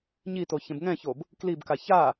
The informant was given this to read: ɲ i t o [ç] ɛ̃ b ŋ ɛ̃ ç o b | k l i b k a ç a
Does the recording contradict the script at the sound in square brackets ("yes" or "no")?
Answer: no